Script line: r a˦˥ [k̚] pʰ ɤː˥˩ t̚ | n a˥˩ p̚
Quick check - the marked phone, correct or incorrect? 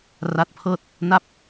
incorrect